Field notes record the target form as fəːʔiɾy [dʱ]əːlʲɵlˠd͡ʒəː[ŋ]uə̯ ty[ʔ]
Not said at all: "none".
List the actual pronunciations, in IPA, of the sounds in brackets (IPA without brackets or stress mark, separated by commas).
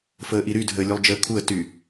dʱ, kʰ, none